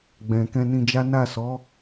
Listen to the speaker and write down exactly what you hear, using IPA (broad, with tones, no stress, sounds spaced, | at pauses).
ɡ͡b ɛ̃˨ k ɛ̃˧ n ĩ˧ d͡ʒ a˦ n a˦˨ s ɔ˨˦